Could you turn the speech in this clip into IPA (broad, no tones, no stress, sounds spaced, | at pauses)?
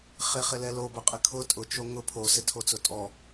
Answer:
χ ɪ χ ɪ l ɛ l o b ʊ qʼ ɪ kʰ ʊ tʼ ʊ t͡ʃ o ŋ ʊ pʰ o s ɪ tʰ o t͡s ʊ tʼ ɔ